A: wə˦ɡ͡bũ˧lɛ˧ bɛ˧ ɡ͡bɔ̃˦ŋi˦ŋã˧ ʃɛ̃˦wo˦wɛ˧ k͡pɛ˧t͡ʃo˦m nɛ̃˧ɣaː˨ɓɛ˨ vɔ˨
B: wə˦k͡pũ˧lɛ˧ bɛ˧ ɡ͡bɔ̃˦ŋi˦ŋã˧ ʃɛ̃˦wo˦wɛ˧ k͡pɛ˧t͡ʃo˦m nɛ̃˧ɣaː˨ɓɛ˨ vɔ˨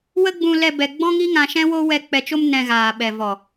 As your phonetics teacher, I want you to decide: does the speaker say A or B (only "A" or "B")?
A